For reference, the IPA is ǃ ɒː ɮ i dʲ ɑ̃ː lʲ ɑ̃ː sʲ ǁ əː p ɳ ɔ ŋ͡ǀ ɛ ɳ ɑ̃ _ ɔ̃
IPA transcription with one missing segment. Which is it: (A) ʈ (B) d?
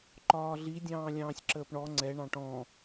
A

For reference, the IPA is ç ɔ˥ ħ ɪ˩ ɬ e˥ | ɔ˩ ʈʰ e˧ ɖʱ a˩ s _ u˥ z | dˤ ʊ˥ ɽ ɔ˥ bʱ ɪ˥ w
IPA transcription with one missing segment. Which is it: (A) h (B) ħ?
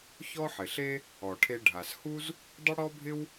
A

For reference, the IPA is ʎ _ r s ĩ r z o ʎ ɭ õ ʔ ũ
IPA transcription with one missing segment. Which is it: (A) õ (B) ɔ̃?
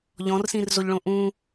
B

